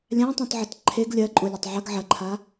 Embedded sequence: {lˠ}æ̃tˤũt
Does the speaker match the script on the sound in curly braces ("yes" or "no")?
no